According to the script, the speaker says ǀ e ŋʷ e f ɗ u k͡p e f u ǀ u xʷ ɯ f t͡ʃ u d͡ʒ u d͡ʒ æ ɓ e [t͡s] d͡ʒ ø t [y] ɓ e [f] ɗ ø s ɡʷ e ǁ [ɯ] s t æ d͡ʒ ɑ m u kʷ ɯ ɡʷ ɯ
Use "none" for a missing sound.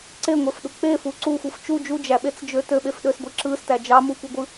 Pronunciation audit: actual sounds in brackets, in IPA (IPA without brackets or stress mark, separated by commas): t͡s, ø, f, ɯ